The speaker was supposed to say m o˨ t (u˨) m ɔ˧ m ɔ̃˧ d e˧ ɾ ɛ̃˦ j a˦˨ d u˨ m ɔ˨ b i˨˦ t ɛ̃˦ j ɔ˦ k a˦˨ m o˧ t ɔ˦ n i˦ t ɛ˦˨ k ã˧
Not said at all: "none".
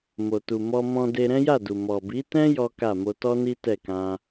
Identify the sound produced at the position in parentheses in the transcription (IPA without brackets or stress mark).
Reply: u˨